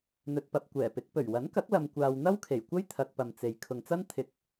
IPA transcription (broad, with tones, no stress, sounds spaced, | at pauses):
n̪ ɵ˧ t̚ p ɐ˧ p̚ kʷ ɛː˨˩ p ɪ˨˥ k̚ p ɵ˨˩ ɥ w ɐ˨˥ n k ɐ˨˥ k̚ l ɐ˨ m kʷ aː˨ w n̪ ɐ˥ w kʰ e˨˩ j kʷ ɐ˥ j t̪ʰ ɐ˧ k̚ p ɐ˨ m t͡s e˨ j kʰ ʊ˨ ŋ t͡s ɐ˥ n t̪ʰ ɪ˨˥ k̚